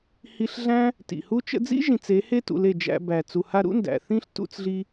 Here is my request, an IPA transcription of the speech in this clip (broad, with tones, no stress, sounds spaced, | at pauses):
h i˧ ɬ ɮ æ̃˦ | t ḭ˨ h u˦ t͡ʃ ə̰˧ d͡z ḭ˦ ʒ ĩ˨ t͡s e˨˦ h e˦ t ṵ˨ l e˦˨ d͡ʒ æ̰˧ b æ˨ t͡s u˨ h a˧ ɾ ṵ˦ n d æ̰˨ θ ĩ˦ ɬ t ṵ˧ t͡s ɮ i˧